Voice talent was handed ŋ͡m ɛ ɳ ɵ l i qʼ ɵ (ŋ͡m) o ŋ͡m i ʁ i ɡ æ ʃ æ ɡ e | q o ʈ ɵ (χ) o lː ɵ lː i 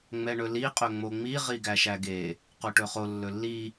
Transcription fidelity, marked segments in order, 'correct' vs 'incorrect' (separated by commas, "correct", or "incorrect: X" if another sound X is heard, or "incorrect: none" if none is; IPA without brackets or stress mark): correct, correct